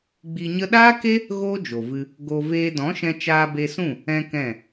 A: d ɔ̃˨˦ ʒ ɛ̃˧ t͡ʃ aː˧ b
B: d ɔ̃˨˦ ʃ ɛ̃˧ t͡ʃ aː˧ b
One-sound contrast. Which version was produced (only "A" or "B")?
B